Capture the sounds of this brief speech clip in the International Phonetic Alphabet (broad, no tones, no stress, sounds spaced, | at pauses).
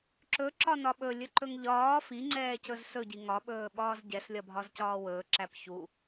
ǁ ɵ ǁ ɒ n ɒ ɓ ɵ lʲ ɵ ǃ ɵ ŋ ʎ ɒː f i ŋ͡ǀ ɛː c ɵ z s ɵ ɟ i ŋ ɒ ɓ ɵː ɓ ɒː z ɟ ɛ s lʲ ɒ bʱ ɒ z c ɒː w ɵː ǁ æ p ç u